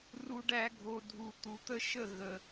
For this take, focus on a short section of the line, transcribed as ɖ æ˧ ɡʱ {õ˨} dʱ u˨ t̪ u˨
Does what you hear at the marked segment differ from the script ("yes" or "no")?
yes